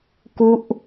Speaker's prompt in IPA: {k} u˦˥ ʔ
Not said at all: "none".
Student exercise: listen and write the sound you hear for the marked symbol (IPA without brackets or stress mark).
k